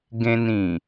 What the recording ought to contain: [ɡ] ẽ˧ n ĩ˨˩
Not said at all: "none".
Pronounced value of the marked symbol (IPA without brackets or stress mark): ɡ